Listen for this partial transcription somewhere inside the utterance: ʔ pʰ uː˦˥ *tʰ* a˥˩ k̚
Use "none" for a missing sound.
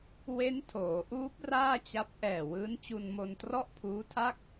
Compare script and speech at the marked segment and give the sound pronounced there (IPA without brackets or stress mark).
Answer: tʰ